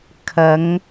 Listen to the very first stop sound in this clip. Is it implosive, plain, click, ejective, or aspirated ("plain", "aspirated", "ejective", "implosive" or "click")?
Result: aspirated